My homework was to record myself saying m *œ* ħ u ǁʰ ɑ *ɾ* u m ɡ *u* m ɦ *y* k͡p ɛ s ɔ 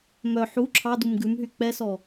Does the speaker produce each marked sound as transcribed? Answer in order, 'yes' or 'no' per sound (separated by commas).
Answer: yes, no, no, yes